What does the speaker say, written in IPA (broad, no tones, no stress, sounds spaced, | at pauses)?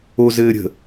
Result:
o z ɘː ɾʲ ə̤